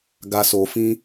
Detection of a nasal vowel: present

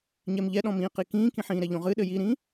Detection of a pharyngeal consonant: present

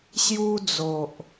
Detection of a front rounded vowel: absent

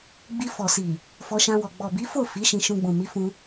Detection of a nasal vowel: present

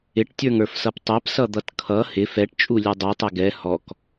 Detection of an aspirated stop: present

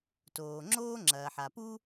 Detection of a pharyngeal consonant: present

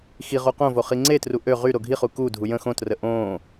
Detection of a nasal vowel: present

